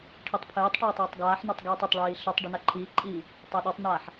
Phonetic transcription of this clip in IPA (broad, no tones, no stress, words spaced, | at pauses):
ʈʰitˤpʰɘːtˤʈaːtˤ ɘːtˤɡaːħnɔtˤ ɡiːtˤɘtˤɭiː ɬɘtˤ ɖɘnaǃʰiːǃʼiː | tˤaɗɔtˤnaːħ